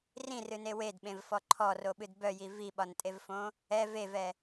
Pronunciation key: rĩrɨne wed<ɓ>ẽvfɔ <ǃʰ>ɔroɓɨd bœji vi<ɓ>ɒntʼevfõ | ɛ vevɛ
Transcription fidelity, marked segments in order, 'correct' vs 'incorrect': correct, correct, correct

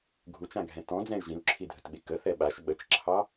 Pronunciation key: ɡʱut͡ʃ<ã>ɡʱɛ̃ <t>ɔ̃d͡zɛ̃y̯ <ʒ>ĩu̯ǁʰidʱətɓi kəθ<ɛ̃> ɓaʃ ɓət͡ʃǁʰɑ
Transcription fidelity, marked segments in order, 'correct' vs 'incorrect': correct, correct, correct, incorrect

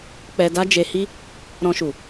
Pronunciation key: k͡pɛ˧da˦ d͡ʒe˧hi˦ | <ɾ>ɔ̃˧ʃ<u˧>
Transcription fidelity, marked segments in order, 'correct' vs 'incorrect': correct, incorrect

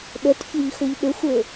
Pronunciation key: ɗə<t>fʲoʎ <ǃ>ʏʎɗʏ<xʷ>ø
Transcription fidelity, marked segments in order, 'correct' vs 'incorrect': correct, incorrect, correct

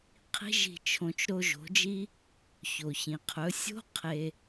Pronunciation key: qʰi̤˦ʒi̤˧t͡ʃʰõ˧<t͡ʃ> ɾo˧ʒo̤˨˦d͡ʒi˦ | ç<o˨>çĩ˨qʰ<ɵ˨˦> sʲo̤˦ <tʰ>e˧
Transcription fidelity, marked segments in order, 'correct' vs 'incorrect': correct, correct, correct, incorrect

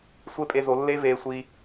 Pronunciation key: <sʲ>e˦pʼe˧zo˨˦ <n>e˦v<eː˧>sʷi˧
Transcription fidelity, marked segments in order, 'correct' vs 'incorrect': incorrect, incorrect, correct

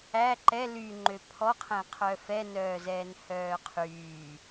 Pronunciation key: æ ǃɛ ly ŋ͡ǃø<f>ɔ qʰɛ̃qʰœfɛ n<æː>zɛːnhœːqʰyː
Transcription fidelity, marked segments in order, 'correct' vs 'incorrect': incorrect, incorrect

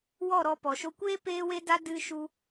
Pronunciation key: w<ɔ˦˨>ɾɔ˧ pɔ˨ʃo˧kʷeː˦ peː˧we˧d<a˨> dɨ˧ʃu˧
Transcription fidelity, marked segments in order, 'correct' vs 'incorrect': correct, incorrect

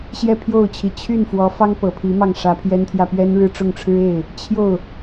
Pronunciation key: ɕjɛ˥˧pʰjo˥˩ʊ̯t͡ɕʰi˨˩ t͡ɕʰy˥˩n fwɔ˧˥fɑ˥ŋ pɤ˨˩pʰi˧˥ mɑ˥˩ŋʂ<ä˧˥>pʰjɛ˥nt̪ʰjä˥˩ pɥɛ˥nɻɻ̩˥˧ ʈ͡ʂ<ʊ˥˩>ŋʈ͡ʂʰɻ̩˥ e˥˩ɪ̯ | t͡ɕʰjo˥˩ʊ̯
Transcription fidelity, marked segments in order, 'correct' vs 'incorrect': correct, correct

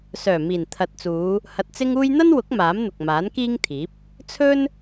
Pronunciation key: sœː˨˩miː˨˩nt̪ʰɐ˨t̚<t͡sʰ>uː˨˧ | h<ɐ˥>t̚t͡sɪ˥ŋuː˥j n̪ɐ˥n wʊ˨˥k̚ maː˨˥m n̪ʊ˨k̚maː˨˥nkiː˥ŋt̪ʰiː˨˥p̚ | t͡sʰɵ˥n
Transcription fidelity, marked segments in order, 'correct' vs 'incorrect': incorrect, incorrect

